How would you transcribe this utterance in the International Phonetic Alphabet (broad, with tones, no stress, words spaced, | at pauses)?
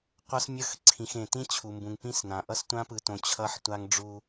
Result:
qʷʌ˦smʲʌ˦˨xǀʰĩ˨x ẽ˨tĩ˦t͡ɕʰu˨mbũ˨ŋ pĩ˦snã˨ ʔʌ˦stʷã˦pɯ˨tõ˨ t͡ɕʰʌ˦ħtʷa˦ŋɖ͡ʐu˦